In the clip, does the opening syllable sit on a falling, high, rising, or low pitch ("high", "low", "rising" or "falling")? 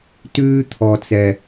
high